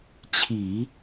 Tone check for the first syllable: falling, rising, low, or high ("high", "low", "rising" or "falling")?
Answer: low